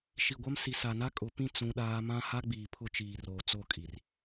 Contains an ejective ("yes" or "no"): yes